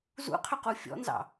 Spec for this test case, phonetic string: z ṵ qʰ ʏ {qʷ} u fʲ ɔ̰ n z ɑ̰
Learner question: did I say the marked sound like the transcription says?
no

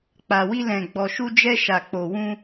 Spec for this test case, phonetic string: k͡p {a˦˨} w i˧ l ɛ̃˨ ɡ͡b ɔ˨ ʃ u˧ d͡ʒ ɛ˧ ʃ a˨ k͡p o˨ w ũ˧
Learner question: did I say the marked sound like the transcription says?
no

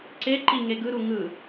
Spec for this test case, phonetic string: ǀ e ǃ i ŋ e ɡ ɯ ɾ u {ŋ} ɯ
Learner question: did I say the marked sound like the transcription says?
yes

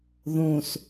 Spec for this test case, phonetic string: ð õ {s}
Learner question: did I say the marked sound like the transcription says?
yes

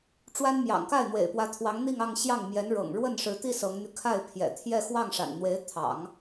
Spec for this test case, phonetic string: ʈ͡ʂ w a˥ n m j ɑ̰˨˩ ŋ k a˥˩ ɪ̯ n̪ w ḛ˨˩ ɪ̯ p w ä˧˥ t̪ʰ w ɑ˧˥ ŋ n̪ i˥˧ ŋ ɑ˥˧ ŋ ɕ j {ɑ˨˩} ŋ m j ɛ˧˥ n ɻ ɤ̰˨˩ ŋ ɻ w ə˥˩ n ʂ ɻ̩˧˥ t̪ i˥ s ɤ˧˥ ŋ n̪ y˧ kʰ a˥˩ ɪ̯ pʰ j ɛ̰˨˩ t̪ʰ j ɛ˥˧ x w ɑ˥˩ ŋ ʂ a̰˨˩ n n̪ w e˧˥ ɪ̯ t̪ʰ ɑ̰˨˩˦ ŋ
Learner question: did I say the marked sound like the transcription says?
no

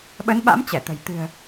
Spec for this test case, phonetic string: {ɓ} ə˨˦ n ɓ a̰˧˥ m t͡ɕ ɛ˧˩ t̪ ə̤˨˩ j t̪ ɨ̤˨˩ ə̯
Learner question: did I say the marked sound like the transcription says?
yes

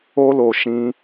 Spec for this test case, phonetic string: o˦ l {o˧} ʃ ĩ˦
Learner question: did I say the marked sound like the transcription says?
yes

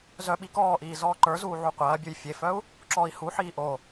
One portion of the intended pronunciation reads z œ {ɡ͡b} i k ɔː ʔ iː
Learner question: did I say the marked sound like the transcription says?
no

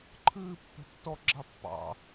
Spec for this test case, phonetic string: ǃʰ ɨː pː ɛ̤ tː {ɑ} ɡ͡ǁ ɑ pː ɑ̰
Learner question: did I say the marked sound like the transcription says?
no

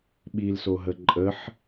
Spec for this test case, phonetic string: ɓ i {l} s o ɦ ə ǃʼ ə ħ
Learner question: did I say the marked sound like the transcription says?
yes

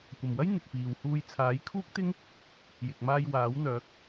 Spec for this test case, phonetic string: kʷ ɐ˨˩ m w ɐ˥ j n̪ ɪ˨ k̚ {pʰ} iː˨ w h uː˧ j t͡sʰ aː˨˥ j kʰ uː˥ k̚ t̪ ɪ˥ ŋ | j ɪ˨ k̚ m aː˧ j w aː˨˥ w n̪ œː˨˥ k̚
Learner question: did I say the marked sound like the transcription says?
no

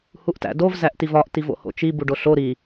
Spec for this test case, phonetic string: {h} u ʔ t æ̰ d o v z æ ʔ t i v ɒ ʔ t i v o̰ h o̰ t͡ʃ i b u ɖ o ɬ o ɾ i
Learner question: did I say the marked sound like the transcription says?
yes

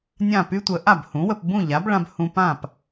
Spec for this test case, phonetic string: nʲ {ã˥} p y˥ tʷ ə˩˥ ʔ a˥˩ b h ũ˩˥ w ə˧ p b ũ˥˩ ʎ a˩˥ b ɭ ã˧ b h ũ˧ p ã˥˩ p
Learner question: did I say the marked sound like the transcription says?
no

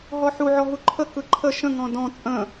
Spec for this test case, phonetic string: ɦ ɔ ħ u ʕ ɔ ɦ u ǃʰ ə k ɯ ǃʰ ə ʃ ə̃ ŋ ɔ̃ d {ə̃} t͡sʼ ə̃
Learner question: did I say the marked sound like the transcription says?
no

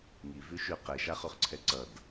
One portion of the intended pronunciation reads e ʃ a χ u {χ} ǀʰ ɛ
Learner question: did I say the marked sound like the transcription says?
yes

